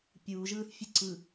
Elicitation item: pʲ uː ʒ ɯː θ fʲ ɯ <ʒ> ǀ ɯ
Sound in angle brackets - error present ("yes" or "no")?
yes